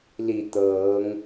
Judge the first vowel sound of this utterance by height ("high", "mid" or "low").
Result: high